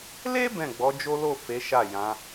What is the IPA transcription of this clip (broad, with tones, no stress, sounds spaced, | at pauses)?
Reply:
l e˦ b ɛ̃˦˨ ɡ͡b ɔ˨˦ d͡ʒ o˦ l o˦˨ f e˨˦ ʃ a˦˨ j ã˨˦